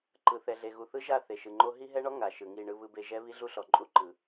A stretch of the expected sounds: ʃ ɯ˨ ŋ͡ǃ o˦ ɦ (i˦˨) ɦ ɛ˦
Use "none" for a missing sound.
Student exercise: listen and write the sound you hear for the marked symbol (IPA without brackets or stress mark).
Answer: i˦